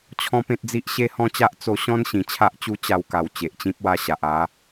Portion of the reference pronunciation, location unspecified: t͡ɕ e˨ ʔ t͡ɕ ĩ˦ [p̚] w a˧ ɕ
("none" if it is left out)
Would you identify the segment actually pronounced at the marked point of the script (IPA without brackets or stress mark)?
p̚